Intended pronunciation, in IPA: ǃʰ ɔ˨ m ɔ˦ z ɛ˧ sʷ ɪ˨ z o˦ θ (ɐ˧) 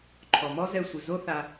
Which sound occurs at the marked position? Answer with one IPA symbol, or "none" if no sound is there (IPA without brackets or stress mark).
a˧